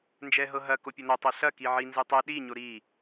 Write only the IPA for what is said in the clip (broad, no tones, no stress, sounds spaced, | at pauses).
n d͡ʒ ɛ ɦ ɤ ɦ ɐ k o pʲ o n ɐ tˤ ɛ ɬ ɐ k i ʕ i n z ɯ tˤ ɛ ɗ i ɲ o ɾ i